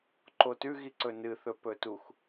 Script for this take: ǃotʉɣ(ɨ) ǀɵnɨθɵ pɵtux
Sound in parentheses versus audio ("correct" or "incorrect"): incorrect